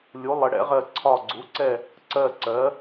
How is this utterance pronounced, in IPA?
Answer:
lʲ u˩˥ lˠ ə˩˥ ɽ ɛ̰˩˥ ʁ ɜ˦˨ ǀʰ ɒ˦˨ ɡ͡ǀ u˩˥ ǀ ɛ˦˨ | ǀ ɜ˦˨ ǀ ɜ˩˥

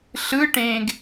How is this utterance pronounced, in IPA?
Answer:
ɬ ɯ ʈ ẽː ɡ

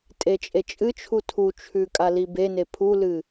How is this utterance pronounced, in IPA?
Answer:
tʼ e t͡ʃʼ e t͡ʃʼ ɨ t͡ʃʰ u tʰ u t͡ʃʰ ʉ kʼ a l i b e n e pʰ u l ɨ

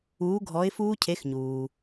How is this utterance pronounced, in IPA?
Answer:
uː˨˥ ɡʱ ɔ˨˥ ɪ̯ f uː˦˥ cʰ e˨˥ x ɲ uː˩

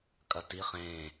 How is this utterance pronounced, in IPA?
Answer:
kʼ ɐ t i χ ẽ

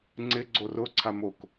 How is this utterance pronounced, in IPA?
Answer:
ŋ͡ǀ ɪ ɡ͡ǀ o r ʊ ǀʰ a m o k

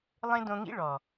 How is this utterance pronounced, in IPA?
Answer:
lˠ ẽ˦ d õ˧ ŋ ḭ˦ ɭ ɔ˨

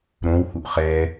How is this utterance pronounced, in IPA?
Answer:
ɾ õ w h u ʔ χ ɛ

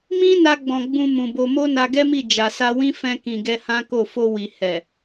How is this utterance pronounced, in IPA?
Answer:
m ĩ˦ n a˧ ɡ͡b ɔ̃˨ ɡ͡b ũ˧ m ũ˨ b o˧ m o˦ n a˧ ɡ ɛ˦ m i˦˨ d͡ʒ a˨ s a˧ w ĩ˦ f ɛ̃˧ k ĩ˨ ɡ ɛ˧ h ã˦ k o˦˨ f o˧ w i˨ h ɛ˨

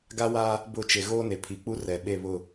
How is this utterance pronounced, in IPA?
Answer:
ɡ a˦ w a˦ | b ʊ˦˨ t͡ʃ e˨ ɣ oː˦ n e˨ pʰ i˨ k͡p u˦ r ɛ˨ ɓ e˦˨ β ʊ˦˨

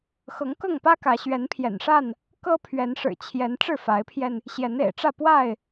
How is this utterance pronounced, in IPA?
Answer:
x ɤ˨˦ ŋ k ɤ˥˨ ŋ p ä˦ k ä˨˦ ɕ ɥ ɛ˨˦ n pʰ j ɛ̰˨˩ n ʂ a˥˨ n | k ɤ˦ pʰ ɥ ɛ˨˦ n ʂ ɻ̩˨˩ t͡ɕʰ j ɛ˨˦ n ʈ͡ʂ ɻ̩˥˨ f a˨˦ ɪ̯ pʰ j ɛ˧ n | ɕ j ɛ˨˦ n ḛ˨˩ ɪ̯ ʈ͡ʂ ä˥˨ p w a˥˨ ɪ̯

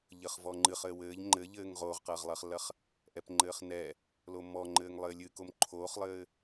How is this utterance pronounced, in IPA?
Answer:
ʎ ɘ χ v ɔ ŋ͡ǃ ɨ χ ɘː w ɘː ʎ ŋ͡ǃ ɘ ʎ ɘː ŋ ʁ oː ʁ q ɐː ʁ lˠ ɐː χ lː ɐ χ | ʔ ɛ p ŋ͡ǃ ɘː χ n ɛ | l o mː ɔ ŋ͡ǃ ɘː ŋ lˠ ɘː lʲ ɨ k o m ǃʰ oː χ lˠ ɘː

